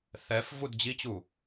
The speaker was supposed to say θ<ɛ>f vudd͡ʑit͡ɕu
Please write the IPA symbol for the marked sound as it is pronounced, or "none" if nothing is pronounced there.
ɛ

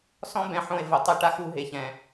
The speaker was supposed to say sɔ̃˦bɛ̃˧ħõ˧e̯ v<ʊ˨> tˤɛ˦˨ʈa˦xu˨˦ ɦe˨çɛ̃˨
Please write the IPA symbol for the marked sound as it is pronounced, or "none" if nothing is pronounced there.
ʊ˨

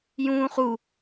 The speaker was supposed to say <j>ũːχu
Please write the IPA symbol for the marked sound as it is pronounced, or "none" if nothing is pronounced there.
j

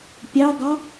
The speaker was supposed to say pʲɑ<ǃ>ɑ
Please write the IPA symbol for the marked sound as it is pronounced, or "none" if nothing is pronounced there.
ɡ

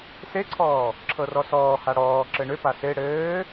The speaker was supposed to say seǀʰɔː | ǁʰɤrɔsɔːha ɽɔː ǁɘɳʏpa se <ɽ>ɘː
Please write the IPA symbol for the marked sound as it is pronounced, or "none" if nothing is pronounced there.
ɽ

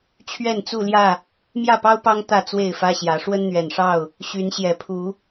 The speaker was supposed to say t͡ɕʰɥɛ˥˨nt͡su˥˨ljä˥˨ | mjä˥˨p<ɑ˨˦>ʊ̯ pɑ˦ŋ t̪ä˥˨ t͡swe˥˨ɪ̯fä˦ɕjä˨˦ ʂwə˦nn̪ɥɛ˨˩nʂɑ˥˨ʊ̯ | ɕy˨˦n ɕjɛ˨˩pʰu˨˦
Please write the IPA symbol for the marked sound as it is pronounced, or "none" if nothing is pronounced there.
ɑ˦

